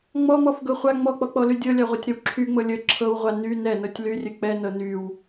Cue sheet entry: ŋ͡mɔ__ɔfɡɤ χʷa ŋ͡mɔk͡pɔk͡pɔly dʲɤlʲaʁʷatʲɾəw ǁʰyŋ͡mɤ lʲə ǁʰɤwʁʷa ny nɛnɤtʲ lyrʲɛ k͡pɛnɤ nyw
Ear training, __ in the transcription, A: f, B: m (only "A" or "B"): B